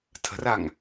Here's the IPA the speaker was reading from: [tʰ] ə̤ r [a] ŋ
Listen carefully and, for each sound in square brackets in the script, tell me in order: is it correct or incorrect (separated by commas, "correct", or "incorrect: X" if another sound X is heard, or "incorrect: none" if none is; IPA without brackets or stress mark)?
correct, correct